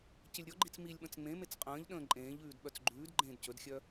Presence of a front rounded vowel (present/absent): present